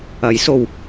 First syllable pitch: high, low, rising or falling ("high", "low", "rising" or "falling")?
rising